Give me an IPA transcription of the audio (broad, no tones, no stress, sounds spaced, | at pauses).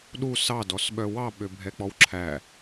ɗ u s ɑ d ɔ s ɓ œ w ɑ ɓ ø bʱ ɛ k͡p ɔ w ǁʰ æ